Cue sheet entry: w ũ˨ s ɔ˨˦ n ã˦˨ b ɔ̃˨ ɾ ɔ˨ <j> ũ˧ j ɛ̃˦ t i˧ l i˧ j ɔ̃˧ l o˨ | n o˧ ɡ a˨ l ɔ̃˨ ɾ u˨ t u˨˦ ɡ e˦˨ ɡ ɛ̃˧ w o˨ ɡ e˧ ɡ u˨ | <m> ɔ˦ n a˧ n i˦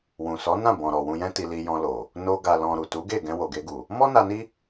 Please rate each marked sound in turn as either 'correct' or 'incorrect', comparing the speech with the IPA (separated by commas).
incorrect, correct